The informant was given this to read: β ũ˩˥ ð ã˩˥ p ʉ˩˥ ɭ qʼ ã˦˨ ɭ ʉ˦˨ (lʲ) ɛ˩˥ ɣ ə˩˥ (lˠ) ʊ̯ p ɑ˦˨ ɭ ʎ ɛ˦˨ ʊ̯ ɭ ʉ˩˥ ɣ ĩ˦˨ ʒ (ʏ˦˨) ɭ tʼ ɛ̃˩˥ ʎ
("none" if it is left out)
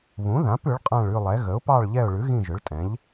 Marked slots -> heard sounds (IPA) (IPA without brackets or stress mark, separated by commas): lˠ, none, ʏ˩˥